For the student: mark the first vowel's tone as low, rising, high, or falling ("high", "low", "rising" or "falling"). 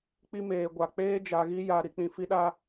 high